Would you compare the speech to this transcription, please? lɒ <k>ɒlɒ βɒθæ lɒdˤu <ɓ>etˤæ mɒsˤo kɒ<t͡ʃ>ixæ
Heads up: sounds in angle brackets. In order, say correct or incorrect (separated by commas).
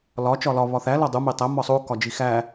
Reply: incorrect, incorrect, incorrect